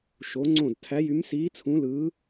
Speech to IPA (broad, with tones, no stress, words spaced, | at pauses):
ʃo˧˥ŋ͡ǀõ˥˨d tʰæ˧˥jy˧˥msiː˧˥ t͡sʰũ˧˥lɯː˧˥